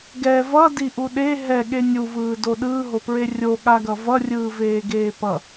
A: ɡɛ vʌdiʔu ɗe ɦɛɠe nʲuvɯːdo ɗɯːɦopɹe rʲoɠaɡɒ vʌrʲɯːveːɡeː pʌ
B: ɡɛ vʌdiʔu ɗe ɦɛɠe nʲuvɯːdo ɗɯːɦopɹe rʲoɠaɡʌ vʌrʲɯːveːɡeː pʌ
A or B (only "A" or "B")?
B